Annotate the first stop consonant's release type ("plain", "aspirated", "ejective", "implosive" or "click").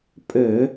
ejective